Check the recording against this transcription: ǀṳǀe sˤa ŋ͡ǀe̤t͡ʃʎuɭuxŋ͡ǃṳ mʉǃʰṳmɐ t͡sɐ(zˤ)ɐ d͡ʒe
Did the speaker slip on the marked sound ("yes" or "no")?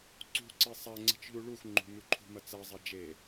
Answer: no